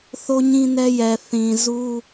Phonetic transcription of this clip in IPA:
θo˦ɲĩ˦nɛ˦jɛ˨ θĩ˨zu˦

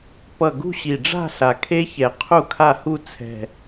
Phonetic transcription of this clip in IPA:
pʌ˨˩ ɡṳ˥˧ɕi˨˩ɖ͡ʐa̤˥˧ ɬa˨˩kʰe˦˥çɛ˨˩ qʰu˥˧kʰa˥˧ hu˥˧ t͡sʰɛ̤˨˩

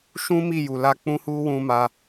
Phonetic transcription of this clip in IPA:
ʃũ˦mi˦˨ju˨la˧ k͡pũ˦hu˦ wũ˧ma˧

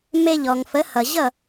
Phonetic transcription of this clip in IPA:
me˧ʎɔ˩ŋfə˩˥hʌ˩ ʑʌ˥˩

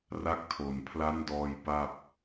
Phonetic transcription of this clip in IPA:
ra˦˥k̚tʰo˨˩n pʰla˦˥ndɔː˧j pa˥˩p̚

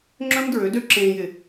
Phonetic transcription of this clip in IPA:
ŋ͡ǁœ̃˦mdɹø˨˦dø˦ ǁẽː˨jɪ˨

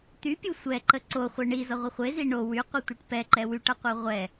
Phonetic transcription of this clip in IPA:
t̪ypʲu sʷɛǃə ǀoχʷɛ ɳizʌʁʷʌ χʷezi ɳo wyqʷɯtʷɯʈ pɛǃɛ wyʈʌqʷɯ ʁʷɛ

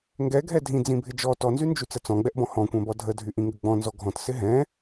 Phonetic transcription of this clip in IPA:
ŋɡɛɡʱɛ dʱĩ d͡zĩbʱɪd͡ʒɔ tɔnzynd͡ʒy t͡sət͡sɔ̃ɡ͡bɛʔbɔ̃ hɔ̃kʷɛ̃bɔ dʱədʱy ʔĩŋɡəɡ͡bɔ̃ nzɔɡʱɔ̃t sɪɦɛ̃

